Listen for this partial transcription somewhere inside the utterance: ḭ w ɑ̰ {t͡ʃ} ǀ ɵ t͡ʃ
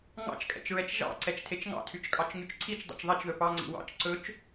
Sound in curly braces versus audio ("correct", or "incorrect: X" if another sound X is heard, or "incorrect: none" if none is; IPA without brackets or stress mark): correct